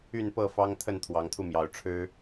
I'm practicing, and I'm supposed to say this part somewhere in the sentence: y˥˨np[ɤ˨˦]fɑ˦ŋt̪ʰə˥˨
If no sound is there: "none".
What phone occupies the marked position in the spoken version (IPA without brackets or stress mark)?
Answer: ɤ˥˨